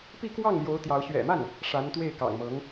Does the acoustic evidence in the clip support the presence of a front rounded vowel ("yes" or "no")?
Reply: no